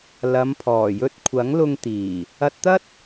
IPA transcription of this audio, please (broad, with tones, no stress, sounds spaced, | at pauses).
l ɐ˨˧ m pʰ ɔː˨˩ j ɵ˧ t̚ kʷʰ ɐ˨˥ ŋ l ʊ˧ ŋ t̪ iː˨˩ | ɐ˧ t̚ t̪ ɐ˥ t̚